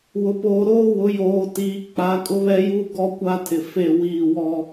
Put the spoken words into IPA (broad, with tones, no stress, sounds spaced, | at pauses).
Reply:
w ʊ˨ p oː˨ ɾ oː˦ w ʊ˨˦ j oː˨ t iː˨ k͡p a˨˦ kʼ ʊ˦ β ɛ˦ j u˦ ɡ ɔ˦ kʷ a˦ tʰ ɪ˨ f e˦˨ w iː˦˨ w ɔ˦